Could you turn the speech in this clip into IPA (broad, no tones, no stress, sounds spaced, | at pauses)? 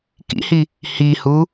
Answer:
k ḭ h i | h i h u